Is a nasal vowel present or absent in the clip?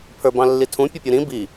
present